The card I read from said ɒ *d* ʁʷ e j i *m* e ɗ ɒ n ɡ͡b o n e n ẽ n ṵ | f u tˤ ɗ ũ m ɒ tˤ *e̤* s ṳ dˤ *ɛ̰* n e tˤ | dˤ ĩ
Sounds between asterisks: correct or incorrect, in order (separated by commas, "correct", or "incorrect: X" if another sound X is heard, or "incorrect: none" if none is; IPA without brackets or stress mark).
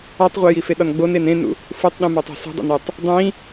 incorrect: tˤ, incorrect: f, correct, incorrect: ḛ